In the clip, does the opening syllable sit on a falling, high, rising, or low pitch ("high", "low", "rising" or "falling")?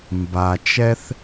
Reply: low